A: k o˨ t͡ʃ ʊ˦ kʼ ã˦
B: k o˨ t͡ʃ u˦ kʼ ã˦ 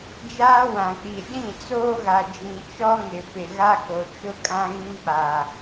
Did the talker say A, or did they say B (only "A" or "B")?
A